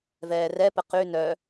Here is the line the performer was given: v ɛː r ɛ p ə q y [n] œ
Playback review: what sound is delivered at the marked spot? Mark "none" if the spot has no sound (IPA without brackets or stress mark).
n